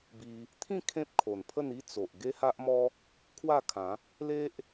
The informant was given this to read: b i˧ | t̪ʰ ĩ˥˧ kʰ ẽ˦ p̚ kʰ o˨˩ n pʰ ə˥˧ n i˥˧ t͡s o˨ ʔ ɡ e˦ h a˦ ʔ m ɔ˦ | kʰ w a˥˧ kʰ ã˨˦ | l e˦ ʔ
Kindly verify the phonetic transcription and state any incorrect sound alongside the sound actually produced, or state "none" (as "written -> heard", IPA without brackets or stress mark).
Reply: none